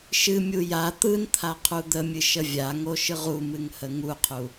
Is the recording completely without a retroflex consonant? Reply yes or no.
yes